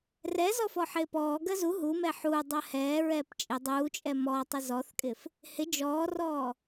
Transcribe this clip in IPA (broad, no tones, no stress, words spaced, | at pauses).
rɛzɔ fɔħɪːpɔːɡɜ zu ɦumɛ ħuː dˤɜhɛːɹɛːp t͡ʃʼɪ dˤuːt͡ʃʼɛ mɔtˤɪ zɔθkʼɪf | hɪ d͡ʒɔːrɔː